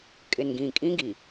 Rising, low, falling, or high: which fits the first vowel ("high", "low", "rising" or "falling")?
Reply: low